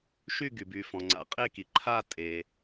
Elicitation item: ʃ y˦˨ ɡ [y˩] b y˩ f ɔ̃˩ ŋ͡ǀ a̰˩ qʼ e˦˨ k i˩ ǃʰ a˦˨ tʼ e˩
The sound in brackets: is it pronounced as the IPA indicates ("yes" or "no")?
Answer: yes